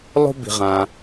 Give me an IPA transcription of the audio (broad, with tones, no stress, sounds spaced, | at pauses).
lˠ o̤˥ b i̤˩ ʁ ã˩